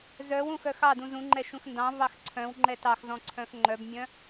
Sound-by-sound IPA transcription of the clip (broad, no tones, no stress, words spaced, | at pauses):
zœwũ xœxɑdũ zũ ŋ͡ǃɛʃũxndɑ̃vɑx ǀʰœ̃w ŋ͡ǃɛtɑxzɔ̃ ǀʰœ̃xŋ͡ǃœbmʲœ̃